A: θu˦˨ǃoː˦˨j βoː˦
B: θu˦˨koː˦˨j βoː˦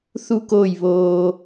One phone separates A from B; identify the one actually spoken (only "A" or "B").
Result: B